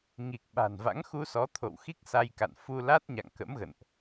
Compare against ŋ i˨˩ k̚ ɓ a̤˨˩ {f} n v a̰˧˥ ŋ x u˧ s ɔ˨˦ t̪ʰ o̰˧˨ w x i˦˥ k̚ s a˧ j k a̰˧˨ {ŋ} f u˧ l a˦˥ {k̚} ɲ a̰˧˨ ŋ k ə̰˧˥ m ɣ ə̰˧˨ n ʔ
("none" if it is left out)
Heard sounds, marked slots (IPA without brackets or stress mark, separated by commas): none, n, t̚